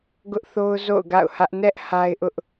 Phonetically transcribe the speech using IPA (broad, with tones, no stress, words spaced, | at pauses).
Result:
ɡʊ˦ʔθo˦ʊ̯ zo̰˦˨ʊ̯ɡa̰˦˨ʊ̯hä˦ʔ nɛ˦ʔ ha˦ɪ̯ʔʊ˦ʔ